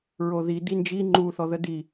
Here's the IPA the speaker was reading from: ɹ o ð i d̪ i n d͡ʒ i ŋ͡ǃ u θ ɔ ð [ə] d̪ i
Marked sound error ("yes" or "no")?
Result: no